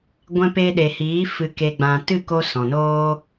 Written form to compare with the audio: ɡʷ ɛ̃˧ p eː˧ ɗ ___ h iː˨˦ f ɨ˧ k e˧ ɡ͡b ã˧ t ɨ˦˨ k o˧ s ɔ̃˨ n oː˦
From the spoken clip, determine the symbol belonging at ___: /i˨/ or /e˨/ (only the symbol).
e˨